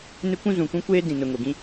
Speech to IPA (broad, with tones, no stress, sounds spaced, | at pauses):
n ɪ˦ kʷ ũ˦ z ũ˨ kʷ ũ˦ kʷ eː˦ d ĩ˨ n ʊ˨ ŋ o˨ ɡ ĩ˦